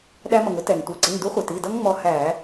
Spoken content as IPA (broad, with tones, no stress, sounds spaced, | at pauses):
ɗ æ˧ m ʌ˩ ŋ ʊ˦˥ t ɛ˩ ŋ tʷ i˩˧˩ ǀ ɪ˩˧˩ ŋ d u˨˥ χʷ ɛ˩ t i˩˧˩ d ʌ˦˥ ŋ ŋ͡m ɔ˧ h æ˧˩˧